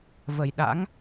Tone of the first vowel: low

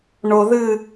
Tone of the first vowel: low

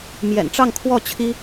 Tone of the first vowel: low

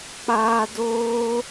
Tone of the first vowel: high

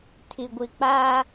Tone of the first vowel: low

